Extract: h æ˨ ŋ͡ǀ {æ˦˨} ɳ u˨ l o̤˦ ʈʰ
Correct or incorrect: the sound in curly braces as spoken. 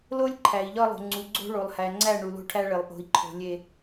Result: correct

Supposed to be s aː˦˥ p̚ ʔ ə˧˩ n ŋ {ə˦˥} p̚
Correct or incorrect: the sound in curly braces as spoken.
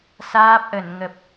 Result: incorrect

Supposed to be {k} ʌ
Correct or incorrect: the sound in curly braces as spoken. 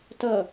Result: incorrect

